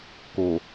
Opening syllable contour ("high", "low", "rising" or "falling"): low